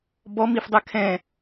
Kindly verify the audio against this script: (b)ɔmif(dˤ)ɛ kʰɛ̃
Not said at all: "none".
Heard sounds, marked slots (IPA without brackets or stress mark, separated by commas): b, dˤ